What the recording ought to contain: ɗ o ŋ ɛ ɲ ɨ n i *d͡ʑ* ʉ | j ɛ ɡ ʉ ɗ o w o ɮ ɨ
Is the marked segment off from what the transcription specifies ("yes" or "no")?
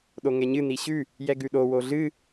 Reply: yes